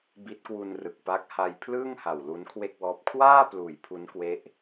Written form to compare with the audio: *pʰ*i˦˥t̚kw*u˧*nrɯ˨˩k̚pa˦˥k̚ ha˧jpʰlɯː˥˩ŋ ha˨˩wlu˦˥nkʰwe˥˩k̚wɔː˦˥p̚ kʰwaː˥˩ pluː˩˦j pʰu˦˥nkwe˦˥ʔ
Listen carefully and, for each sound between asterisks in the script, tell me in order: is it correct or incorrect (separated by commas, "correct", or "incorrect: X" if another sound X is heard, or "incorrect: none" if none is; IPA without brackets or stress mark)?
incorrect: b, correct